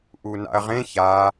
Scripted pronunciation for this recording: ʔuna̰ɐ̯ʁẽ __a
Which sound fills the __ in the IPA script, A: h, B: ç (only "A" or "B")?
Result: B